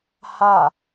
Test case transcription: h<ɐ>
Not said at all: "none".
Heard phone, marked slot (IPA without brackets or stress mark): a